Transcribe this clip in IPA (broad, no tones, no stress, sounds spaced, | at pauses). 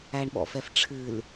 æ ɳ ɓ ɔ̰ f ɛ f ʈ͡ʂʰ ɨ l